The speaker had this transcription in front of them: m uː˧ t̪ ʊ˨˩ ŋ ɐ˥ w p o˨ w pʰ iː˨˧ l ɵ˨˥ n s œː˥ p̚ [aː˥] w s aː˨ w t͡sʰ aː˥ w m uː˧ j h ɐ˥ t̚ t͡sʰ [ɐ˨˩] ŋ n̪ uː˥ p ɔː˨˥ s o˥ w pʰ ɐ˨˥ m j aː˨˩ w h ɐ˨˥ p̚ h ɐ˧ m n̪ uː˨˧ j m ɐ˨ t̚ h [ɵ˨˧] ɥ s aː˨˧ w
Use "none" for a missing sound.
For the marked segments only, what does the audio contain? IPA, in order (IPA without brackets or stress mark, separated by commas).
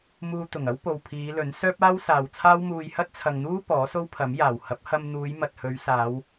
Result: aː˥, ɐ˨, ɵ˨˧